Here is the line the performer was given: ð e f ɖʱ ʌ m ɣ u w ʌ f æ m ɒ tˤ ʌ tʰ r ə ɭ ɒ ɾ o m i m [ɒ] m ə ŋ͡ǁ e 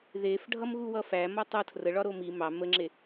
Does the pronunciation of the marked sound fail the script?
yes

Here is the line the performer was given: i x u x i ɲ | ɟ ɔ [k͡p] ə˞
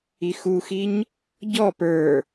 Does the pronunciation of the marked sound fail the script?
yes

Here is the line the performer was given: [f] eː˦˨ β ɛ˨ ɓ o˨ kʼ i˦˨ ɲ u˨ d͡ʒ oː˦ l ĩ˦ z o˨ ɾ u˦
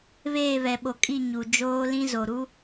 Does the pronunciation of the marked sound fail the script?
yes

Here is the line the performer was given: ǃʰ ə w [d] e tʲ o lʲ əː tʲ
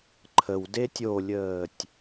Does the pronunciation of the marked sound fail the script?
no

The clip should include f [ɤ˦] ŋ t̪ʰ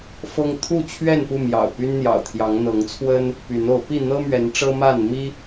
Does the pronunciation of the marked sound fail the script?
no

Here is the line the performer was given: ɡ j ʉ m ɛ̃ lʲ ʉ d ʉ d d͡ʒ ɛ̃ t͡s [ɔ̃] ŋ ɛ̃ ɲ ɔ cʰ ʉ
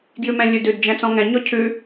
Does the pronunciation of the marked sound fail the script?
no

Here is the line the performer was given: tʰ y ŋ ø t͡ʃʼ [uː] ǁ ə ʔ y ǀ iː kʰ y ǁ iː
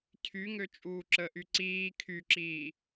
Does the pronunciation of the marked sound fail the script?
no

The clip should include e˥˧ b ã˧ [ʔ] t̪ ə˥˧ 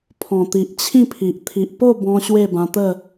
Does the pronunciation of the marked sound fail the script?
yes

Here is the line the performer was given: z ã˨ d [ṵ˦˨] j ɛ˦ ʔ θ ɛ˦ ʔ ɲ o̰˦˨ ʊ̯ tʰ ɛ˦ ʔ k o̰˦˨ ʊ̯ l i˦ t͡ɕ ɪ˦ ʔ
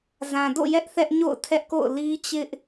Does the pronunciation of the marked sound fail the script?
yes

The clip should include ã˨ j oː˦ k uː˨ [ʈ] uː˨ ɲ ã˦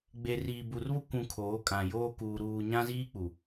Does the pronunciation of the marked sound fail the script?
yes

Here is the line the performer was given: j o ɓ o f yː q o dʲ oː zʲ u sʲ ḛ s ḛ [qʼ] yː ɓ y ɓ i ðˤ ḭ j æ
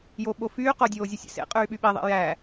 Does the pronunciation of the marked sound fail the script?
no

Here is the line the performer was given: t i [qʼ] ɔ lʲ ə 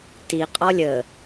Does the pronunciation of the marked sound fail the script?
no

